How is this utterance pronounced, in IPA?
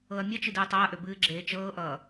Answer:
ɤ ɐ̯ mʲ ʌ t͡ʃ ɨ d ɨː tˤ a ɐ̯ ʔ ø b ɨː ɡ͡ǁ eː t͡ʃ ɤː ʔ ʌː

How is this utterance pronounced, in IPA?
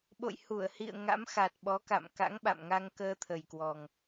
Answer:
ɓ o̰˧˨ j h u˧˩ ə̯ h ḭ˧˨ ə̯ ŋ a̰˧˥ m x a˨˩ t̚ ɓ ɔ˨˦ k a̰˧˨ m k a̰˧˥ ŋ ɓ a̰˧˨ m ŋ a˧ ŋ k əː˧ t̪ʰ ə˨˩ j k w ɔ˨˩ ŋ

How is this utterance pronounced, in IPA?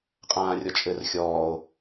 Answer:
qʼ ãː rʲ ɔ t͡ʃʼ ɘ r xʲ ɔː o̯

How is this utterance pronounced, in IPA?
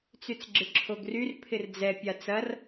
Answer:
t͡s y t͡s ɡ͡ǁ ɪ ǁʰ o ɡ r y r pʰ ɪ r d͡z ɛ pʲ a t͡s ɐ r

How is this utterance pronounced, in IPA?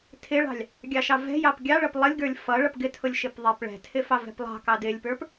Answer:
tʰ ɪ ɭ ɑ̤ lʲ | ɡʲ ɑ ʃ ɑ v ɛ̤ j ɑ p ɡʲ ɑ ɭ ʌ p lˠ ʌ lʲ ɡ ə˞ lʲ f ʌ ɭ ʌ p ɡ ɪ tʰ ʊ lʲ ʃ ɪ p ðˤ ɛ p ɭ ɛ̤ tʰ ɪ f ɑ v ɛ̤ p lˠ ɑ̤ k ɑ d ɪ lʲ p ə˞ p

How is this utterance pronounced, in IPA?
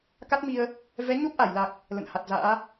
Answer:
k a˦˥ t̚ m i˧ ə̯ | v ɛ˨˦ ɲ o˦˥ p̚ ʔ a˧˩ j l a˨˩ k̚ | l ə̰˧˨ n h a˨˩ t̚ z a̰ː˧˥

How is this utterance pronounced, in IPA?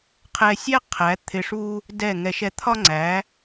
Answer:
qʰ ɛ˧ sʲ æ˦ qʰ æ˨˦ t̪ʰ ɪ˧ ʂ u˦ | d ɛ˦˨ ŋ ɛ˧ ʃ ɛ˧ t̪ʰ ɒ˦ ŋ͡ǀ æ˨˦

